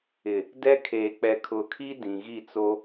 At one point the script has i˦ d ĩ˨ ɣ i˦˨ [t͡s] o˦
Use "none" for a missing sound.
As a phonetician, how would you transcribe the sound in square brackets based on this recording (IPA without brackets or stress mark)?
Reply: t͡s